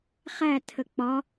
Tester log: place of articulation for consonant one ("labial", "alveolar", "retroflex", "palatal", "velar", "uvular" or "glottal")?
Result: uvular